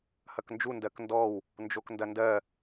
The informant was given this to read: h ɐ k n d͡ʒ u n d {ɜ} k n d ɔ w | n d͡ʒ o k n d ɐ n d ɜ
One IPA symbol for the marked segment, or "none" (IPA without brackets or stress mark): ɜ